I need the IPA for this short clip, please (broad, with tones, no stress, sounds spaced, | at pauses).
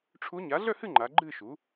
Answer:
ʈ͡ʂʰ u˧˥ ɲ a˩˥ ɮ œ˥˨ h ɨ˥˨ ŋ͡ǃ a˩˧ ɡ͡ǃ ɨ˥˨ ʃ u˩˥